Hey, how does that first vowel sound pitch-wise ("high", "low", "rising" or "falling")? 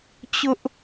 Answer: high